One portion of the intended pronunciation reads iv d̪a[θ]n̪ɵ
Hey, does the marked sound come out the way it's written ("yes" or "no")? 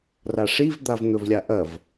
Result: no